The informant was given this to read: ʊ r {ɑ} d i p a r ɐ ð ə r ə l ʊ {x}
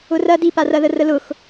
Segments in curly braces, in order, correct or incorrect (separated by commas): incorrect, correct